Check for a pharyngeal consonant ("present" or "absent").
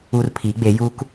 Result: absent